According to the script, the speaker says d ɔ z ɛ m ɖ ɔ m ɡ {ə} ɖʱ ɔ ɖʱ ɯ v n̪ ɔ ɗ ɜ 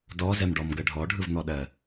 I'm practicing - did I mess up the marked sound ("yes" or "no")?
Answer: no